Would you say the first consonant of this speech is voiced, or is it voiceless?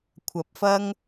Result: voiceless